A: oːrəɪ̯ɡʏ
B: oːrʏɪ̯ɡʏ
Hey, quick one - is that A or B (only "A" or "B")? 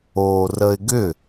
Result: A